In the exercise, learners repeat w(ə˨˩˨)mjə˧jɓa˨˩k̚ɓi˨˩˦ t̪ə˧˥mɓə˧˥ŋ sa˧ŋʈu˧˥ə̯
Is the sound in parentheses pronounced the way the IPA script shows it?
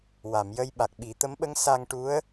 no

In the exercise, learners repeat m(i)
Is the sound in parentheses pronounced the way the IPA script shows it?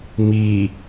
yes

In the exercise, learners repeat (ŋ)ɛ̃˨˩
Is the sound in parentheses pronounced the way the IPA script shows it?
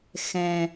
no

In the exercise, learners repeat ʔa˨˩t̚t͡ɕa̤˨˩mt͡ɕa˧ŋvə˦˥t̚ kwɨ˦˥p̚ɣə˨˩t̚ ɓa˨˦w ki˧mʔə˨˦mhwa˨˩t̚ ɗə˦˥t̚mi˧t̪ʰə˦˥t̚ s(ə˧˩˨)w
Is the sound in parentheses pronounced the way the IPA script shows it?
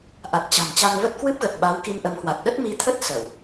yes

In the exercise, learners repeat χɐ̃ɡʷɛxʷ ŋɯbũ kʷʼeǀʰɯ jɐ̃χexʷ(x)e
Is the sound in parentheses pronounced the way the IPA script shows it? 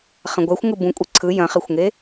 no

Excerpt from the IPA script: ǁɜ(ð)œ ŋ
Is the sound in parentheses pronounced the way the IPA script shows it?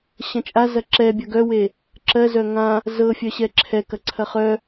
no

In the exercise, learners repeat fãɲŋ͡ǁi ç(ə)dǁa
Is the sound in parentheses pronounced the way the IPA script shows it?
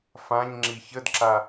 yes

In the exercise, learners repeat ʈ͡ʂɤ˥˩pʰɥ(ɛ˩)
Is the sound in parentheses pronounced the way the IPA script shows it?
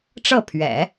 no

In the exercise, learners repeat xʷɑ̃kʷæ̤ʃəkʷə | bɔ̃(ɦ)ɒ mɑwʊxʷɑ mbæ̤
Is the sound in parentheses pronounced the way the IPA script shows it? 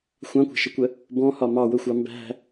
no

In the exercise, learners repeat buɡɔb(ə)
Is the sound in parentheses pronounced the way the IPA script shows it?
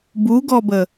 yes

